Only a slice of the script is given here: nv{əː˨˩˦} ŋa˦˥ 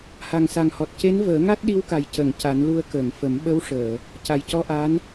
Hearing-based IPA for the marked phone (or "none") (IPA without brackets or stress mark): əː˨˩˦